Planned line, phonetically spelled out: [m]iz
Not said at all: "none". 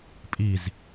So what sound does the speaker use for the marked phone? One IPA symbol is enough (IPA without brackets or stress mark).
pʼ